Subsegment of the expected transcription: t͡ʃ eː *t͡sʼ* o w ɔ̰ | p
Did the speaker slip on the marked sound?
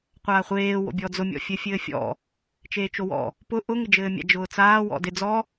yes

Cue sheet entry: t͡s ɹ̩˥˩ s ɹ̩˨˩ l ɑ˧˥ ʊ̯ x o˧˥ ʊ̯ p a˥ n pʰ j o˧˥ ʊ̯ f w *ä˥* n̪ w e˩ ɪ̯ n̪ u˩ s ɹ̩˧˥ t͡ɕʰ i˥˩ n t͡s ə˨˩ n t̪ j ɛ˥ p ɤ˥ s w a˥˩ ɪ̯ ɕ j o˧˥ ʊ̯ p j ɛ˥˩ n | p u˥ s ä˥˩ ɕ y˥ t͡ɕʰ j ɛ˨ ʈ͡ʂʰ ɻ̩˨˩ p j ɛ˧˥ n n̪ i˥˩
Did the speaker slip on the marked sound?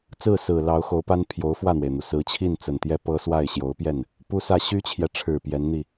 yes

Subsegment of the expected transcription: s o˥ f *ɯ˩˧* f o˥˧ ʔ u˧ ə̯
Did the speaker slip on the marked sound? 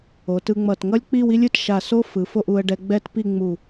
no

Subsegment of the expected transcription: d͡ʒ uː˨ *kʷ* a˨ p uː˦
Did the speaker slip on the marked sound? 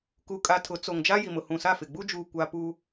no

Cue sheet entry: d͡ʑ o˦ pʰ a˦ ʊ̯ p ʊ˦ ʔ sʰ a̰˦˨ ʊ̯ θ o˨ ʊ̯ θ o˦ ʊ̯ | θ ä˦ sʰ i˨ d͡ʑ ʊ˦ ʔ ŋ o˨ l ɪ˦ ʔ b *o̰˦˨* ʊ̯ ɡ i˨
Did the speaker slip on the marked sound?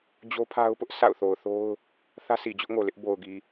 yes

